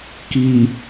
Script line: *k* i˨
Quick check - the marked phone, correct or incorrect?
correct